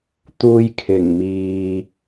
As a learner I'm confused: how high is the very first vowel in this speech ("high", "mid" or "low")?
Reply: high